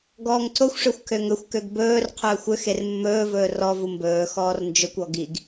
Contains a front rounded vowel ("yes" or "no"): yes